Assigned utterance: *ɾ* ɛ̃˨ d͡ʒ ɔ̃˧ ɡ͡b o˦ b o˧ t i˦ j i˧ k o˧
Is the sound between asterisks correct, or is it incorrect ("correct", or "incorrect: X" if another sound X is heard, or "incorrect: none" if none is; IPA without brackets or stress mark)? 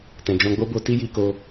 incorrect: t